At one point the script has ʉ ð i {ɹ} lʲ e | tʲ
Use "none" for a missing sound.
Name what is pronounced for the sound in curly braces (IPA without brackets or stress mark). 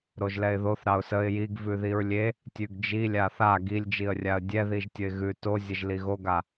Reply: ɹ